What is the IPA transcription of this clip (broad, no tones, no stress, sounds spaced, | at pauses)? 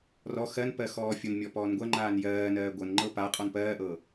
r ɔ x ɜ n p ɜ x ɔː fʲ o n mʲ ɔ p ɔː n ɡʷ ɜ ŋ͡ǃ aː n j ɜː n ɜː ɡʷ ɤ n ŋ͡ǃ ɤ p a qʼ ɔ n p ɜː ʔ ɤ